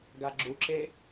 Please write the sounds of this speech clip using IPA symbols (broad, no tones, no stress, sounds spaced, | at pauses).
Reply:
ɡ a ɡ͡ǁ u ǁ e